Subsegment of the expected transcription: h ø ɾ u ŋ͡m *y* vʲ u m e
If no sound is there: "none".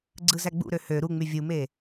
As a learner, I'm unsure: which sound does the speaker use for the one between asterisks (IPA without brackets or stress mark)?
y